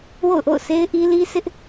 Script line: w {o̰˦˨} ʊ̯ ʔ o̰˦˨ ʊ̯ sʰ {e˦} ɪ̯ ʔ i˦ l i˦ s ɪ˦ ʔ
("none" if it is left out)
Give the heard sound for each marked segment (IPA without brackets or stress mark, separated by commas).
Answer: o̰˦˨, e˦